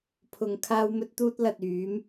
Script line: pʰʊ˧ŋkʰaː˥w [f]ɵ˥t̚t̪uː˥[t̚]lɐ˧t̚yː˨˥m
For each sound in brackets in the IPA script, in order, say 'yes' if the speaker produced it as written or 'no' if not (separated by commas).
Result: no, yes